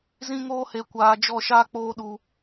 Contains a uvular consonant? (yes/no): no